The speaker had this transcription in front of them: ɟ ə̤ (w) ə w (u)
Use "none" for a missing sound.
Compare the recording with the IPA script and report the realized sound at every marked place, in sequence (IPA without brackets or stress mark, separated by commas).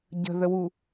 ð, u